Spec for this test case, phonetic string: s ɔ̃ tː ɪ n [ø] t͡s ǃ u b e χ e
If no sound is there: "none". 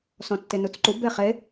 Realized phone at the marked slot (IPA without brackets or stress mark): u